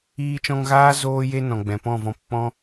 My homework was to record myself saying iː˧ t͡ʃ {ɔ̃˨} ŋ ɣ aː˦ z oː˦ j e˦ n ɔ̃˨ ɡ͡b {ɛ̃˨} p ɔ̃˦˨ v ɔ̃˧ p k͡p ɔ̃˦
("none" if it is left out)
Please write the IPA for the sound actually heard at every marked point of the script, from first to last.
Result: ɔ̃˧, ɛ̃˨

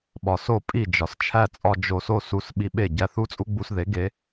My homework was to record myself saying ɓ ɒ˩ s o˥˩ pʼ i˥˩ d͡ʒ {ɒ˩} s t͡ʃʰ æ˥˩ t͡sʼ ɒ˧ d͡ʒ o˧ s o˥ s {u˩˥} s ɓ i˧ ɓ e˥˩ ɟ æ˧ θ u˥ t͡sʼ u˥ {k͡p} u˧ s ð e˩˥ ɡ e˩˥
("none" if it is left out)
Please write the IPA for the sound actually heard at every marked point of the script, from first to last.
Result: ɒ˩, u˧, ɡ͡b

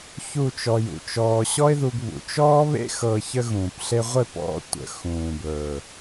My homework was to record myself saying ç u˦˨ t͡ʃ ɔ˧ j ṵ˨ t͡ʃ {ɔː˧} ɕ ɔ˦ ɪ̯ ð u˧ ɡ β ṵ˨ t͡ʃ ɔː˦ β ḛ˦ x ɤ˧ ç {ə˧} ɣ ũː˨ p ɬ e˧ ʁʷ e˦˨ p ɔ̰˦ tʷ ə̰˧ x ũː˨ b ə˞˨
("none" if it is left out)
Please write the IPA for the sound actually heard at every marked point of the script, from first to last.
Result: ɔː˧, ə˧

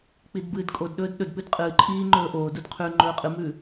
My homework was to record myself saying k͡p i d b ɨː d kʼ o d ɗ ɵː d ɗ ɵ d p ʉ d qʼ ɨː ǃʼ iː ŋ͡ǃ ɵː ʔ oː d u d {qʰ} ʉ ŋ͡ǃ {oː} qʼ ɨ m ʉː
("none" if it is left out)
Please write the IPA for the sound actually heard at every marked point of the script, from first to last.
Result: qʰ, ɵː

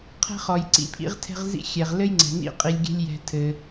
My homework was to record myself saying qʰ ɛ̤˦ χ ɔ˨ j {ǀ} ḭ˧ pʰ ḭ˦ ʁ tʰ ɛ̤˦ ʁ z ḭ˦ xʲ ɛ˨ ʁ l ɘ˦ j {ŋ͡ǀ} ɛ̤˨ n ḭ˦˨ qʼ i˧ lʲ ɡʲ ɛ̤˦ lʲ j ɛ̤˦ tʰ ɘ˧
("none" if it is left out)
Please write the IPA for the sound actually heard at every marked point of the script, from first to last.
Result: ǀ, ŋ͡ǀ

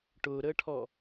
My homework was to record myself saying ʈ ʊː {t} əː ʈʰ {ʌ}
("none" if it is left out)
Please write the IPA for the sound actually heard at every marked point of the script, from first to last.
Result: ɾ, ɔ

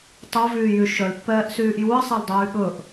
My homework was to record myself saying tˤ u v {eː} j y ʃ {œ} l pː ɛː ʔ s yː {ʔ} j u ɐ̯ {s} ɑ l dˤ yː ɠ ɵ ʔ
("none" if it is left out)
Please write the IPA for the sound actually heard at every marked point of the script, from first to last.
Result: yː, œ, ʔ, sˤ

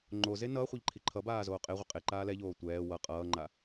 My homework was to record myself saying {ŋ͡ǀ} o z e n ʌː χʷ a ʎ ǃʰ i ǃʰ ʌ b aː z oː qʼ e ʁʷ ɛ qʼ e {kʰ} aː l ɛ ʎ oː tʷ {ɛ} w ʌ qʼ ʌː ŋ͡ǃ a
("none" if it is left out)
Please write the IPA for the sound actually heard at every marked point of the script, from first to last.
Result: ŋ͡ǃ, ǃ, ɛː

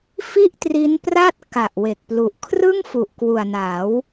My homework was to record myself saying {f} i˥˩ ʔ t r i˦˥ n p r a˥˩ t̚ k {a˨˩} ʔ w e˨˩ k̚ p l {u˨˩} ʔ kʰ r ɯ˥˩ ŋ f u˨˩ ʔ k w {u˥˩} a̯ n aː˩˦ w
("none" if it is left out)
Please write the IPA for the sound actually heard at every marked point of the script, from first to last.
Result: f, a˨˩, u˨˩, u˨˩

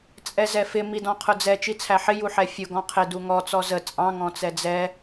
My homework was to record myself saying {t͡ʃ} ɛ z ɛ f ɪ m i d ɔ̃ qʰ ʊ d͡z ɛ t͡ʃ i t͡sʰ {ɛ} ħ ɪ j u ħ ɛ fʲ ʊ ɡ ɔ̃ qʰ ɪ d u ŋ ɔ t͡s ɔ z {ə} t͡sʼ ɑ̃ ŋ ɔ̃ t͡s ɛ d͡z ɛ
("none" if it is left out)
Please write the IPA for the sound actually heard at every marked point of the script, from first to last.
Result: t͡sʼ, æ, ə

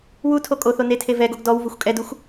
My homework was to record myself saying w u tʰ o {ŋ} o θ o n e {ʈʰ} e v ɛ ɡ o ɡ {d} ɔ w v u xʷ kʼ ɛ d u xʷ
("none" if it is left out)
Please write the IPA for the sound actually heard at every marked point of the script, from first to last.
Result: kʼ, tʰ, d

